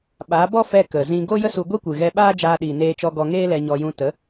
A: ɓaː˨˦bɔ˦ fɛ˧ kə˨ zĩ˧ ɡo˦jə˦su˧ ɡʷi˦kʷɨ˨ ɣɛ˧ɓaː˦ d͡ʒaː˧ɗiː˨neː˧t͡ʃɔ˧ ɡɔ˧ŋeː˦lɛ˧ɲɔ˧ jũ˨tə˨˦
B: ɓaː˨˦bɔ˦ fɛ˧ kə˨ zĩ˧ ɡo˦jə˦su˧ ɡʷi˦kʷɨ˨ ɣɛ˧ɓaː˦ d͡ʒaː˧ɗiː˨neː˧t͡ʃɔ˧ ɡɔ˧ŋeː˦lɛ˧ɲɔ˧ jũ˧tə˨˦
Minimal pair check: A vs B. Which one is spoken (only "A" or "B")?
B